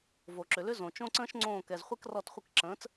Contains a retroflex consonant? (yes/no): no